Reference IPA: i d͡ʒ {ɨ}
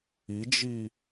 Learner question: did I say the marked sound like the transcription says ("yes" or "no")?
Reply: no